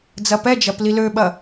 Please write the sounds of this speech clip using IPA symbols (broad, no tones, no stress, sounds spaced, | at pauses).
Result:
d͡z ɐ p ɛ d͡ʒ ɐ p l i l ø ɓ ɐ